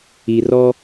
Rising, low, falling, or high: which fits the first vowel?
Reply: low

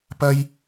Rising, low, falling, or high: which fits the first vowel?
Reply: high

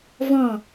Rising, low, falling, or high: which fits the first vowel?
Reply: falling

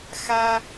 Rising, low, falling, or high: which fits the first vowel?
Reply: high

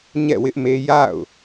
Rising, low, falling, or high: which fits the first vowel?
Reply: falling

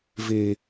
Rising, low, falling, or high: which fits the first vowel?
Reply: low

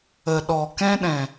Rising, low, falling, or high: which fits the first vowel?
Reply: low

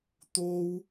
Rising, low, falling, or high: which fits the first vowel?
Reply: high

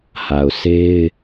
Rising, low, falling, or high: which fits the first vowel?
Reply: low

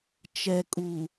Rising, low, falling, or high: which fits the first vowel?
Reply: low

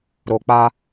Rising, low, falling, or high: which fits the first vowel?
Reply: low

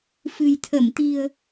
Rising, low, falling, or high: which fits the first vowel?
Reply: low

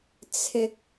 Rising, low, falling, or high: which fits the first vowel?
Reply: high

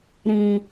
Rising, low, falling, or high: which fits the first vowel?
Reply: low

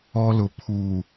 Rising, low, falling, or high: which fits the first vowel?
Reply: high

